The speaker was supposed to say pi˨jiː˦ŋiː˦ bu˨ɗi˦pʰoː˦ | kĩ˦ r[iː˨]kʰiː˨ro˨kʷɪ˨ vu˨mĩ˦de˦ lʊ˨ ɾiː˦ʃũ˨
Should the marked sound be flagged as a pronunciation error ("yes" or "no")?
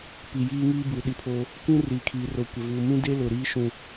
no